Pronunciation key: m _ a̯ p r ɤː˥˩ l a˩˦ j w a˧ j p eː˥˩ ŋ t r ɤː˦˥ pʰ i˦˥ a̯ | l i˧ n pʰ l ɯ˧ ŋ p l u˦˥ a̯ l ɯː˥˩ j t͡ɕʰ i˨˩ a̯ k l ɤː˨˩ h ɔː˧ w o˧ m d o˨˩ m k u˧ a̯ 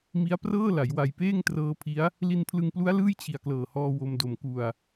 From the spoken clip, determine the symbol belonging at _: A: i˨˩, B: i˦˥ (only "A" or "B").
B